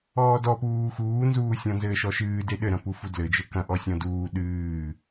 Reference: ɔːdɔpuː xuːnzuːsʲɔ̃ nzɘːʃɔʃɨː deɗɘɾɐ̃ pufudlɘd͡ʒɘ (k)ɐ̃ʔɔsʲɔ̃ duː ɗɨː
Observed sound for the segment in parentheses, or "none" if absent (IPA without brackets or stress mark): k